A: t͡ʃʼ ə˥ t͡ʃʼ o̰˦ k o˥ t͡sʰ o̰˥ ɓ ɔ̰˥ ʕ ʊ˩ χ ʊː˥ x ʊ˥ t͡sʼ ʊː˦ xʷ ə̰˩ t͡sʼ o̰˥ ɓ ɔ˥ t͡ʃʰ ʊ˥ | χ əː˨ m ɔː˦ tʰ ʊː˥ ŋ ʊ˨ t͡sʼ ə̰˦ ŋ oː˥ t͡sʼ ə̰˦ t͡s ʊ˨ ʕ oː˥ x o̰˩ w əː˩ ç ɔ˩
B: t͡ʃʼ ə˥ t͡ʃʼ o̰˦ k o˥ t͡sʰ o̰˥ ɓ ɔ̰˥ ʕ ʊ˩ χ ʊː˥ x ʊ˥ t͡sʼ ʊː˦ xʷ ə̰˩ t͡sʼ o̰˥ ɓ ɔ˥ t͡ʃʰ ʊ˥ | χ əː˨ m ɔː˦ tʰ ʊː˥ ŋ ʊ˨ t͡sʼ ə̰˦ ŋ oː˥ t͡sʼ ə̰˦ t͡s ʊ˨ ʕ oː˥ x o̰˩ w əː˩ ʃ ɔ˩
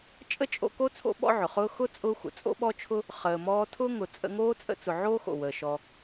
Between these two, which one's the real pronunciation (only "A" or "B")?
B